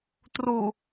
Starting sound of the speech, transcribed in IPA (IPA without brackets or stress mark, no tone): t